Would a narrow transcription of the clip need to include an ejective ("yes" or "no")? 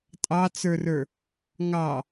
yes